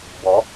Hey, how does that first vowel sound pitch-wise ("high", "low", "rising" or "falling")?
rising